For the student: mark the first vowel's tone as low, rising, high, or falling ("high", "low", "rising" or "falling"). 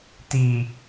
low